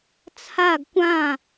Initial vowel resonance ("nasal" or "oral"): oral